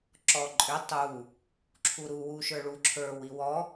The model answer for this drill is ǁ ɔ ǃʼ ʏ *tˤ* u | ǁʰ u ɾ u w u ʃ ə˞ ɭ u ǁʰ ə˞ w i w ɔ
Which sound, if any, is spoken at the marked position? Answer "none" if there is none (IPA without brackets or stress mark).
tˤ